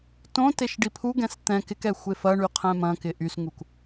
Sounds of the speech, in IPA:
t õ t e ʃ ɖ i pʰ u ɡ ɛ̃ s t̪ ɛ̃ k ɪ k ɛ xʷ e f ɐ ɳ y qʰ ɛ̃ m ɐ̃ k ɪ ʔ y s ŋ u k

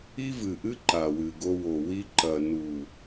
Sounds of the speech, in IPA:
i˦ v ɨ˨ ʔ ɨ˦ ǃ a˨ w ɨ˨ ɡ o˧ w o˨ w i˧ ǃ ɐ˨ n u˨

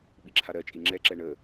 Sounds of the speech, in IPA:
ɓ i ǁʰ a ɾ ɜ t͡ʃʼ i ŋ͡ǁ ɛ ǁ ɛ ɳ ə

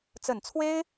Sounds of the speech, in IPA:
t͡s ə˨˩ n t͡sʰ w e˥ ɪ̯

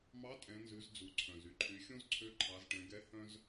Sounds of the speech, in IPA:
m ɑ˧˥ tʼ ɛ̃˩˧ n z ʉ˩˧ z d͡z u˩ ǀʰ œ̃˩ z y˧ ǃʰ y˩˧ xʲ õ˥ z ǀʰ ø˧˥ ǃʰ ɑ˩˧ z ʈ ɛ̃˩˧ ɡ ɛ˧˥ h œ̃˥ z

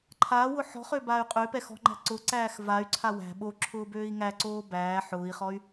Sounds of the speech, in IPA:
ǃʰ aː w ʊ ħ ɔ̤ χ ø b aː y̯ qʼ ø p ɛ x ɔ̤ ŋ͡ǃ æ̤ ǀ ʊ ǀ æː x v a y̯ ǀʰ a w æ̤ ɓ o ǁʰ ʊː b øː i̯ ŋ æ ǀ oː b æː ħ ʊː i̯ χ ɔ y̯

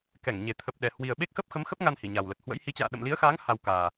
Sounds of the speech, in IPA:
k ɛ˧˩ ŋ ɲ e˨˩ t̪ʰ ə˨˩ p̚ ɗ ɛ˨˩ h w i˨˩ ə̯ ɓ e˦˥ k̚ x ə˦˥ p̚ x ə˨˦ m x ə˦˥ p̚ ŋ a˧ n h i˧˩ ɲ a˨˩ w l ə˨˩ t̚ h w ə̰˧˥ j h i˨˦ t͡ɕ a̰ː˧˨ ɗ ə̰˧˨ m l i˨˦ ə̯ x aː˨˦ ŋ h a˧ w k aː˨˩

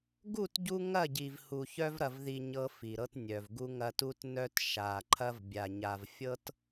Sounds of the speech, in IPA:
ɡ u˦˨ t ɟ u˦ ŋ ɐ˦˨ ɟ i˨ v h u˨ ç œ˦ v ɾ ɐ˨ v ð i˨ ɲ ɤ˦ f i˨ ɾ ɤ˦ t nʲ œ˨ v ɡ u˦ ŋ ɐ˦ t u˦ t n œ˦ t ʃ a˨ ǃʰ ɐ˦ v bʲ a˨ ɲ a˨ v fʲ ɤ˦ t

